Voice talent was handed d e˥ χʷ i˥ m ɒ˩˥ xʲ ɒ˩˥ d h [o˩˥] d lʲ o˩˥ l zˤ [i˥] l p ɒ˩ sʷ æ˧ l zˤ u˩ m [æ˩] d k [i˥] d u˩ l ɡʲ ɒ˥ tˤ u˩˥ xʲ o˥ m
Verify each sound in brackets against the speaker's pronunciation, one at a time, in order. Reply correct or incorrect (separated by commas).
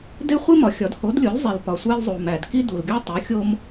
correct, incorrect, correct, correct